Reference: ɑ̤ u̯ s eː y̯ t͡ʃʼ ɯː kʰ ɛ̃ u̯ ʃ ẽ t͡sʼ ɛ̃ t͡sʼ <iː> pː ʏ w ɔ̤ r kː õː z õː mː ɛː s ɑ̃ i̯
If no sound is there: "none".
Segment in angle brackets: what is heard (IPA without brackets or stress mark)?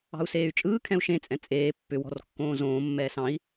eː